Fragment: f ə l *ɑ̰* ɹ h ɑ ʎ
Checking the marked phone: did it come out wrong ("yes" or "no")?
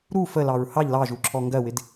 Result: yes